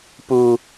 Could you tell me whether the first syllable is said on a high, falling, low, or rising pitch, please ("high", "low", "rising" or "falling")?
low